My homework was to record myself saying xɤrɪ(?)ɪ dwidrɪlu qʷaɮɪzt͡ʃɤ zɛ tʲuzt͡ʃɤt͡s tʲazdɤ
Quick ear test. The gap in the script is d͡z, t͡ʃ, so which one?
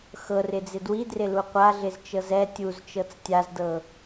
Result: d͡z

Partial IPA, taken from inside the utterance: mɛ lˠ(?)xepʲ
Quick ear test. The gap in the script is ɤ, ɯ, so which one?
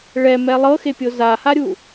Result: ɤ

